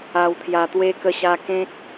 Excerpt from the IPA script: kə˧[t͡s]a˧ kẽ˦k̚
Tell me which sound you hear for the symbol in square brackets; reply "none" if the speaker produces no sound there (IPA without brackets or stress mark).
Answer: ɕ